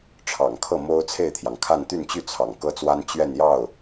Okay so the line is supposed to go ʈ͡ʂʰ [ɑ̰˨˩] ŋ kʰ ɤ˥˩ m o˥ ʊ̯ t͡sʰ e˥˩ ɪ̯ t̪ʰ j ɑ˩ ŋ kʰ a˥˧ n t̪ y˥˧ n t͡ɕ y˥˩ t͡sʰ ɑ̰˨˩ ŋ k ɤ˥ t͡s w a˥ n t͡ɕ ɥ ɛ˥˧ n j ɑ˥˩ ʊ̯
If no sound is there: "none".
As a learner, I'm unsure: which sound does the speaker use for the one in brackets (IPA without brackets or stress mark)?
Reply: ɑ̰˨˩